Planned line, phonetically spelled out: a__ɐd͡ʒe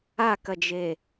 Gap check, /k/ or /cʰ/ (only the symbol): k